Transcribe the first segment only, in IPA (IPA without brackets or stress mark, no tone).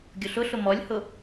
ɡʲ